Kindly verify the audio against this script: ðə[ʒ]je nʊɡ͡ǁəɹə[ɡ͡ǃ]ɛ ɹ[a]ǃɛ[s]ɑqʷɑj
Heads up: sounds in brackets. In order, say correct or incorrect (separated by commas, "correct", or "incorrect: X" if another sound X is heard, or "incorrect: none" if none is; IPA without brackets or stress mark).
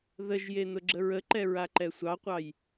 correct, incorrect: ǃ, correct, incorrect: sʷ